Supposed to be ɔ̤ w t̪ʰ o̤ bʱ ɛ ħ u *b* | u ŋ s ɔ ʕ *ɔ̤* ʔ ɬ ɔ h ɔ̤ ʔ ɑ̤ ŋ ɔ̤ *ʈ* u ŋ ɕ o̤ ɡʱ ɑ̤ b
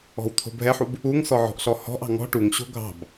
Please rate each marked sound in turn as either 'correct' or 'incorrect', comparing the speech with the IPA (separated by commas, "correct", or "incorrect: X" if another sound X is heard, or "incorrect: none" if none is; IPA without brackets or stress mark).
correct, correct, correct